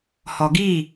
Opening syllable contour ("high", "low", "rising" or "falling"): low